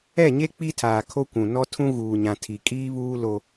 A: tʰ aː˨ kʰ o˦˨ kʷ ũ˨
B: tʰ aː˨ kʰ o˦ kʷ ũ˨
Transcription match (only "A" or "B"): B